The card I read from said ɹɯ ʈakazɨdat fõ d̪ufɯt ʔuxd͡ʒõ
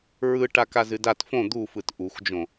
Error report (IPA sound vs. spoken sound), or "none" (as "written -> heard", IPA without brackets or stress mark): none